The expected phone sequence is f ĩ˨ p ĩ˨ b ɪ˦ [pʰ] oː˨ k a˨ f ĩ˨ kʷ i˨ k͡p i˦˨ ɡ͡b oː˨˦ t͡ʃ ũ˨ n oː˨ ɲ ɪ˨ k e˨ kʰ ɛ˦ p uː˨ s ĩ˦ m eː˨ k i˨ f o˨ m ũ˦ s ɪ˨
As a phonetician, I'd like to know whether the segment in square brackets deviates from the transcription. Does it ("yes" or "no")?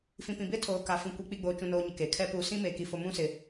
yes